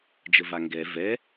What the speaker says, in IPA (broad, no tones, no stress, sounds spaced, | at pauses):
d͡ʒ ə v a ŋ ɡ ɛ v ɛ